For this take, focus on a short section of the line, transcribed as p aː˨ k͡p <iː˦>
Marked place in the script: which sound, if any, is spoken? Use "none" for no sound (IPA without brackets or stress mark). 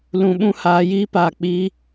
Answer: iː˦